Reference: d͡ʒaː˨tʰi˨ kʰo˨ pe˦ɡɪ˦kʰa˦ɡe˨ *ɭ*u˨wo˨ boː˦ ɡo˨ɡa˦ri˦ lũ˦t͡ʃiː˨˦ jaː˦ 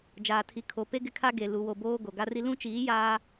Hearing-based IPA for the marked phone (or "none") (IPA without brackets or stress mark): l